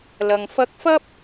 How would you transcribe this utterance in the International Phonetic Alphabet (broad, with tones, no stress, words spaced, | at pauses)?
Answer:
lɐ˨ŋ fɐ˧k̚fɐ˥p̚